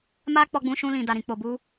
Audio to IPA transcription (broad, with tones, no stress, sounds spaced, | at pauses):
m a˦ k͡p ɔ˧ ɡ͡b ũ˧ ʃ ũ˧ l ĩ˨ d a˨ ɾ ĩ˨ k͡p o˨ b u˧